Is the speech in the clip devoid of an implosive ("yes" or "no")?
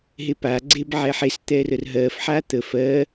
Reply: yes